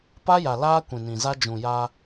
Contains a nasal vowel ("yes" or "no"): yes